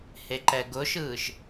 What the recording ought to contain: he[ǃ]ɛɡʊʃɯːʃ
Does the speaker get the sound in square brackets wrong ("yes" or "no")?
no